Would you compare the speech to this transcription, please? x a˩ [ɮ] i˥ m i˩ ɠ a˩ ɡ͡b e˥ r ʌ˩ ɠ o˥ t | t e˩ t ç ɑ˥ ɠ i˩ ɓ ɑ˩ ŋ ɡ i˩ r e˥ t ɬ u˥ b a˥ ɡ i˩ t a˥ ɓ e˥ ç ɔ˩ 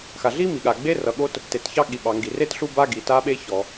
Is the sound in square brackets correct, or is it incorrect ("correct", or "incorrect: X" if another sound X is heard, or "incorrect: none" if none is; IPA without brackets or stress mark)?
correct